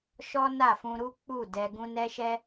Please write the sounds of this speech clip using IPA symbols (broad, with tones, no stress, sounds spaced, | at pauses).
ʃ ɔ˦ n a˦˨ f ũ˧ ɾ u˦ k͡p u˦˨ d ɛ˧ ɡ ũ˦ n ɛ˦ ʃ ɛ˦